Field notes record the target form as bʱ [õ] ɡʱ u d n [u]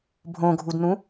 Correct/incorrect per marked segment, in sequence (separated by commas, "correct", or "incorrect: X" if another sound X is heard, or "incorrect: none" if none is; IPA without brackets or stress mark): correct, incorrect: ũ